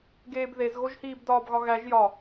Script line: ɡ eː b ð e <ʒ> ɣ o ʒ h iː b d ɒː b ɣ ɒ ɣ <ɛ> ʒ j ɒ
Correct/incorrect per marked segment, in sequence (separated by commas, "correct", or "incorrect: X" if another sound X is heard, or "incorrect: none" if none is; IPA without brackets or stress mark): incorrect: z, incorrect: æ